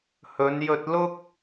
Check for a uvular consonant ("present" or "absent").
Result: absent